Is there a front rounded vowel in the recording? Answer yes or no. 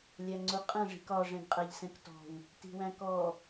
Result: no